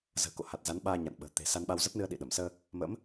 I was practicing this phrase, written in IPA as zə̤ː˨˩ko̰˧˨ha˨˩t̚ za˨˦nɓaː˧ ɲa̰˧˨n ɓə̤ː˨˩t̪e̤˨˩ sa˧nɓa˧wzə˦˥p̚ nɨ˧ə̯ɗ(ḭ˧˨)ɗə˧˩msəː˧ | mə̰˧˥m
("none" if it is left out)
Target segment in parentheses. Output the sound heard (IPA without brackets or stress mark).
ḭ˧˨